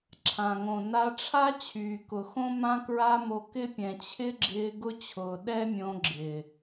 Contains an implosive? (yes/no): yes